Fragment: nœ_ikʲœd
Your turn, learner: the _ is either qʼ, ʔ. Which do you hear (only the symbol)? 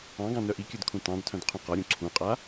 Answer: ʔ